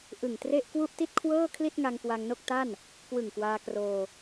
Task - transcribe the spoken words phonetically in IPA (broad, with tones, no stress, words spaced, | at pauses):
ʔɯ˨˩ŋtre˥˩ʔ kwu˥˩ʔti˥˩t̚kʰwɤː˥˩kʰli˥˩t̚ ŋa˧ŋkwa˧ŋno˥˩k̚ ta˥˩n | kwɯ˨˩ŋkwaː˧kroː˧